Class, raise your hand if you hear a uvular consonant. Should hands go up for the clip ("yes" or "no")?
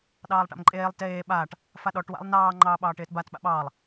no